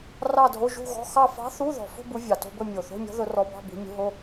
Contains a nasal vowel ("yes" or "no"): no